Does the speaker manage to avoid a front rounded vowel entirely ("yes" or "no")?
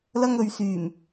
no